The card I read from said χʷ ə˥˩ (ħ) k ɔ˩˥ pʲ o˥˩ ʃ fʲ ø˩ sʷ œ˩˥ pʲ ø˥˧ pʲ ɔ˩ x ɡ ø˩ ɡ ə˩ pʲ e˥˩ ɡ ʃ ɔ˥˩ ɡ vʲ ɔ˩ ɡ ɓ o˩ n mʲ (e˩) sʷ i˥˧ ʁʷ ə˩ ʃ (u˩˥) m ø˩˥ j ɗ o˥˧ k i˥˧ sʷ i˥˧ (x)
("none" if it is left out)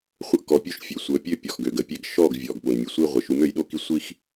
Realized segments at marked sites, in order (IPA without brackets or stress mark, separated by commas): ʔ, e˩, u˩˥, x